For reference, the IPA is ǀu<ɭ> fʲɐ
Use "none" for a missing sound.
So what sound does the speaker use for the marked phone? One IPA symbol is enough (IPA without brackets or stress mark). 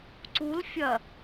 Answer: l